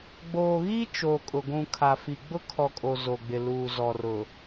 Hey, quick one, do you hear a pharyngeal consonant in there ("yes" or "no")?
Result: no